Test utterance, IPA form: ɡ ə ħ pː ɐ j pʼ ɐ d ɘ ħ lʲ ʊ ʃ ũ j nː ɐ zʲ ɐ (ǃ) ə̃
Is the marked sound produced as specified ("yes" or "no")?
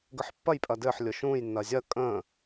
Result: no